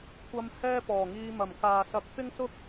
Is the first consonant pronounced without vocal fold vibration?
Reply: yes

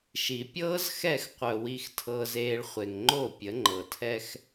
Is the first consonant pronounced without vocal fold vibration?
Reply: yes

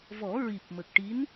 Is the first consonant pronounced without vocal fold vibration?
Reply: no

